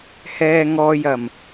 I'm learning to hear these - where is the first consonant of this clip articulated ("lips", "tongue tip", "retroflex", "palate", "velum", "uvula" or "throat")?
throat